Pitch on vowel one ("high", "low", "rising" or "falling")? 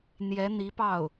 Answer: rising